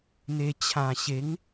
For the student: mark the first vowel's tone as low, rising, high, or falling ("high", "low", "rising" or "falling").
low